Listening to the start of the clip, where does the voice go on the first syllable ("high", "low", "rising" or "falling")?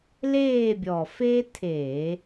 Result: falling